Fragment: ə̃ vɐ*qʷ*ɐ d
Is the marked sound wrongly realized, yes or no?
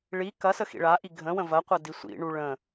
no